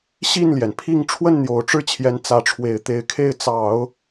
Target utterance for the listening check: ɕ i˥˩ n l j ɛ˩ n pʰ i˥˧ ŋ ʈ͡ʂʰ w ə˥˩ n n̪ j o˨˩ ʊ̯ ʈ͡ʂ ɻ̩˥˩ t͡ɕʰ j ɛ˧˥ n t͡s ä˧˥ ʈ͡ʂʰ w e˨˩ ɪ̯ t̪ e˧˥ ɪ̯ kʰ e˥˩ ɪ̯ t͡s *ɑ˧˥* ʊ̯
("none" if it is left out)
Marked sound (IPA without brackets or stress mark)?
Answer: ɑ˨˩˦